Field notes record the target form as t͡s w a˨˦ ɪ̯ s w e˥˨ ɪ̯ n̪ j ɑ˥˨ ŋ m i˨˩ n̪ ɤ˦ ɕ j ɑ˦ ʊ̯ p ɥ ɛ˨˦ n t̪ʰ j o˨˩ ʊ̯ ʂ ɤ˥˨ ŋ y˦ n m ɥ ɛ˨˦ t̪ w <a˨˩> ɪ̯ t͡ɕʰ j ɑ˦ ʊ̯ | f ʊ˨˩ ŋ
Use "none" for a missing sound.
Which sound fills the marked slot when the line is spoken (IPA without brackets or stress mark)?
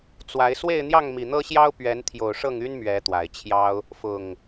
a˨˩